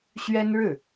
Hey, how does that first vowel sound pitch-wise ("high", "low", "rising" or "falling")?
high